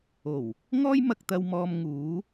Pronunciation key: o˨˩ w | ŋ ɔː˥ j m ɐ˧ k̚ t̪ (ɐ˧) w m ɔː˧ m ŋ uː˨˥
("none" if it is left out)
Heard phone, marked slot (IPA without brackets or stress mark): ɐ˧